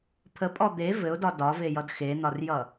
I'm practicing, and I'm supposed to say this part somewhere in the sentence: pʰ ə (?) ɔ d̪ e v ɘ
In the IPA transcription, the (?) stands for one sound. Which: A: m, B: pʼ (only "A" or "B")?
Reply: B